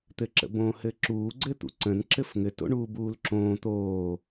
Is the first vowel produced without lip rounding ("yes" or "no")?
yes